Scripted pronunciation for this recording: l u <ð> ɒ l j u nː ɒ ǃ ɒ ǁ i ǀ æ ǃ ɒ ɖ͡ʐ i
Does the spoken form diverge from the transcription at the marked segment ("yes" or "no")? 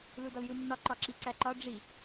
yes